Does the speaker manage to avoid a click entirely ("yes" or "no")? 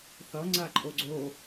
no